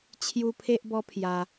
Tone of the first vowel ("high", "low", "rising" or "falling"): high